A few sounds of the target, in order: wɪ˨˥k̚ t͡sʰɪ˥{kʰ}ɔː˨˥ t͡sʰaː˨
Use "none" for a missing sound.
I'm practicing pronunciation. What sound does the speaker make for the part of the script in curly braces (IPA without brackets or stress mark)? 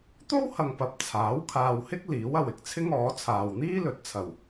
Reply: ŋ